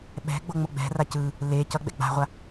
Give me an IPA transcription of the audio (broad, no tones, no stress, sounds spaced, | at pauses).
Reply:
ɓ ɛ̤ ɡ͡b o ŋ͡m o ɡ͡b ɛ̤ r a c ɯ | l e c ʌ ɡ͡b ɛ̰ ɡ͡b a̤ ʁʷ a